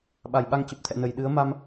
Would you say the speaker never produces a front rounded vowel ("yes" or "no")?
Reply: yes